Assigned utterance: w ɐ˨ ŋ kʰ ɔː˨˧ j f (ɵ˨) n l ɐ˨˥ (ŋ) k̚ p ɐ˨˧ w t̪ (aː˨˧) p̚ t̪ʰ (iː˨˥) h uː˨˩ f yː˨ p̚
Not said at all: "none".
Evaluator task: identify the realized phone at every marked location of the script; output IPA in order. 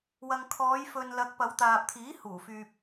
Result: ɵ˨, none, aː˨, iː˨˥

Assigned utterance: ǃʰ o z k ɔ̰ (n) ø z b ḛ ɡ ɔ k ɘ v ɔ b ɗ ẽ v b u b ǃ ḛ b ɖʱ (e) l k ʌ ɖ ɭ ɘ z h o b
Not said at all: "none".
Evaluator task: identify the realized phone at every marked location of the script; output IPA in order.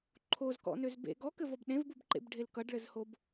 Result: n, e

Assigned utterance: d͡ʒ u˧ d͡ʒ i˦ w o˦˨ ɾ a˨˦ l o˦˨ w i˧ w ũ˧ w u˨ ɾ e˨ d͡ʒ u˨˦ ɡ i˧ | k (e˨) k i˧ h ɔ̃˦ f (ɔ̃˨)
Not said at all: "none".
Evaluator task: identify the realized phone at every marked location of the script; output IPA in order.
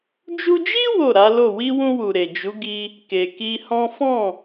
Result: e˨, ɔ̃˦˨

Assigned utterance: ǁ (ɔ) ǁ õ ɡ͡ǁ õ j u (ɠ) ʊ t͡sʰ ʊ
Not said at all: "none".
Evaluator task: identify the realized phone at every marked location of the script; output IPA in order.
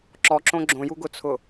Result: ɔ, ɡ

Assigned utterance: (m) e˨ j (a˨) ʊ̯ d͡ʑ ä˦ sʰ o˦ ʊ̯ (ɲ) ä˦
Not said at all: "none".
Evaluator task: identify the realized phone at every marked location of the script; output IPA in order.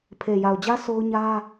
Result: pʰ, a˨, ɲ

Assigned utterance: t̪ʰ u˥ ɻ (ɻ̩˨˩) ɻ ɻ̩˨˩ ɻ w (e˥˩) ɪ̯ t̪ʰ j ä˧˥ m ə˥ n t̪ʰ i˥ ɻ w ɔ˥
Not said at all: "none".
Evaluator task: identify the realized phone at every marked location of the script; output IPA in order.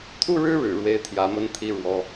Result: ɻ̩˥, e˥

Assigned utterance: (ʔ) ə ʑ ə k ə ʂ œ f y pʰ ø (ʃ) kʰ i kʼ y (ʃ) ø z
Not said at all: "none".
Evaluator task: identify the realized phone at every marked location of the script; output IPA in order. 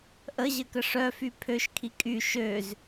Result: ʔ, ʃ, ʃ

